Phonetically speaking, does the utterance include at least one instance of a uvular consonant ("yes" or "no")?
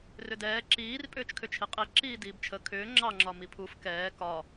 yes